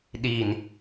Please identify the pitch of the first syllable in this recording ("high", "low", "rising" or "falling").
low